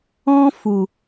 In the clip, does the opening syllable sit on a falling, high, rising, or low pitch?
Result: high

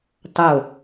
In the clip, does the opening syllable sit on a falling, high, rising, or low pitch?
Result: falling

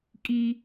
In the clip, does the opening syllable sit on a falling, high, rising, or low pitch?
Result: high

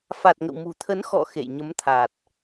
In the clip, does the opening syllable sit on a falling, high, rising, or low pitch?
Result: low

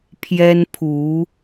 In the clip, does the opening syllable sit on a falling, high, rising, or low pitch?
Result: high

